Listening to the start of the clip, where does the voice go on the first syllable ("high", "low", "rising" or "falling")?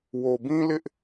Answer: low